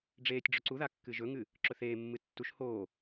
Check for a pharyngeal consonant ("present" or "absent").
absent